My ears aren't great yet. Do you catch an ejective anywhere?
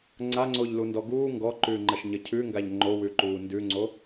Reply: no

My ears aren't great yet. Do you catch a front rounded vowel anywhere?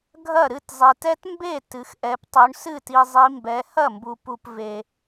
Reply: no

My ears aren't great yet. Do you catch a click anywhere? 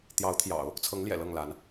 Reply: no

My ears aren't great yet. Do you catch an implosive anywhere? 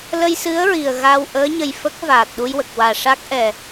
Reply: yes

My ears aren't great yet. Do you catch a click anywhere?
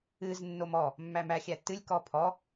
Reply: no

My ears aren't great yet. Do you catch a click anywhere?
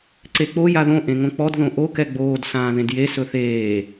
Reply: yes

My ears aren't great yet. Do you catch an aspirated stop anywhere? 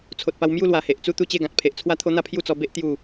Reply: yes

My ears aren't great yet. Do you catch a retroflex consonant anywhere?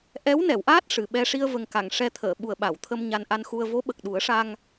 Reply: yes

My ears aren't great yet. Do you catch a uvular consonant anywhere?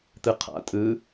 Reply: yes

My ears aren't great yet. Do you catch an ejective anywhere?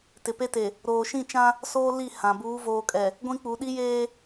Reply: yes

